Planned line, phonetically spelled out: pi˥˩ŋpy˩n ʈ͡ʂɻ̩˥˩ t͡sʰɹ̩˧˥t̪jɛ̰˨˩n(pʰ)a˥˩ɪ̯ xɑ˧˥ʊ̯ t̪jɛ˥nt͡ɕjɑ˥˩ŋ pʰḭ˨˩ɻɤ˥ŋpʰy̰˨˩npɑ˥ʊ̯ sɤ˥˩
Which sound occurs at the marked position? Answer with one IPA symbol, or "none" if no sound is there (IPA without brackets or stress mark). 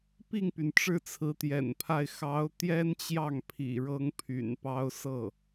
pʰ